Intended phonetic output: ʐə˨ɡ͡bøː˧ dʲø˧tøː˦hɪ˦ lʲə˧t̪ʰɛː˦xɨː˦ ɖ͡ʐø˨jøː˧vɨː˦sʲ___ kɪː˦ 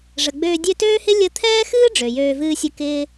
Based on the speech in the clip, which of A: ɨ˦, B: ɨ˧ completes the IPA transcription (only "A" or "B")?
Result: A